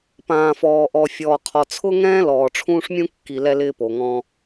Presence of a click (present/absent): absent